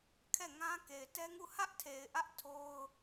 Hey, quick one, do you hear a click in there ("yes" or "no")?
no